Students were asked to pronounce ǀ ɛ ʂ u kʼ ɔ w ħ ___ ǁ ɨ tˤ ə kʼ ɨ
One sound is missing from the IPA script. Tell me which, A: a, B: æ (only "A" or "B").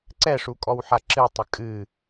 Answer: A